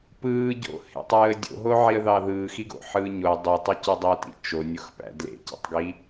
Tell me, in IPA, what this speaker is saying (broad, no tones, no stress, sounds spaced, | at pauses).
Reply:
p ɯː ɟ o̰ h ḛ tˤ ɯː ə̯ dʲ o̰ ɦ o ʕ i ə̯ ð ɑ ð ɯː x i ɡ o̰ ħ ɯː ɲ o ə̯ dˤ y tˤ ɯ c y dˤ o t ḭ t͡ʃ o nʲ o x p æ̰ d l ḛ c ḭ tˤ ɡ i